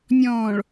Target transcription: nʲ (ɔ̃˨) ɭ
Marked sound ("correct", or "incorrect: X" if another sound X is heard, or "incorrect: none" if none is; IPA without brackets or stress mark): incorrect: ɔ̃ː˨